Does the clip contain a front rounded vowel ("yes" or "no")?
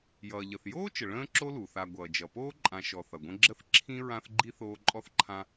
no